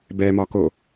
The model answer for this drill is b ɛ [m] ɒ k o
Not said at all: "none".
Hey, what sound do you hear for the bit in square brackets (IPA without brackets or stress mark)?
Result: m